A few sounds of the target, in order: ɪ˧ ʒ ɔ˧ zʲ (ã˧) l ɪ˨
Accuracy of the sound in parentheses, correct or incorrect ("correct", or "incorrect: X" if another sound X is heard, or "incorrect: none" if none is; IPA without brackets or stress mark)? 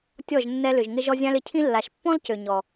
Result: correct